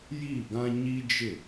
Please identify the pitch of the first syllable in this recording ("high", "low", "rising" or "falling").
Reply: falling